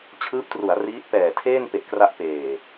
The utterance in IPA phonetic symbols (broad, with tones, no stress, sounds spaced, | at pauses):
t͡ɕʰ ɯː˦˥ p̚ t r u˩˦ a̯ r iː˦˥ t̚ p ɛː˨˩ tʰ eː˥˩ n p e˨˩ ʔ k r a˦˥ ʔ p eː˨˩